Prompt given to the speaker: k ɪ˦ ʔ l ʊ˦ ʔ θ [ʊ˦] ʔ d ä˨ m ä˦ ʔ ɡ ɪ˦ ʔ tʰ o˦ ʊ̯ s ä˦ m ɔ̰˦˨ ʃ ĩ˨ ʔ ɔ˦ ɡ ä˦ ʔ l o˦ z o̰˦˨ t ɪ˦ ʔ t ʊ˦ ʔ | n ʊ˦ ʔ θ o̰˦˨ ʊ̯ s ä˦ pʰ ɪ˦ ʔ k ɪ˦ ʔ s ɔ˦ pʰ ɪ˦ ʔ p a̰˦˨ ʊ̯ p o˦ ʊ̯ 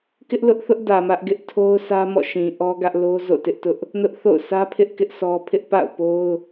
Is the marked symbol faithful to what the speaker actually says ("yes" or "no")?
yes